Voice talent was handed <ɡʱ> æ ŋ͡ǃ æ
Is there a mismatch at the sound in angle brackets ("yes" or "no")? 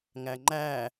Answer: yes